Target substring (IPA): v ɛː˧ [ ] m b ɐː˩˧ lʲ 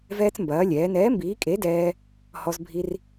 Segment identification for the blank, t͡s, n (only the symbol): t͡s